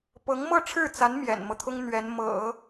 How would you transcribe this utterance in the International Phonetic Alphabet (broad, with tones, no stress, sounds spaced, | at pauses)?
p ɤ˧˥ ŋ m ɤ˥˧ ʈ͡ʂʰ ɻ̩˥˩ t͡s a˧˥ n m j ɛ̰˨˩ n m ɤ˦ t̪ʰ ʊ˥ ŋ n̪ ɥ ɛ˧˥ n m ɤ̰˨˩˦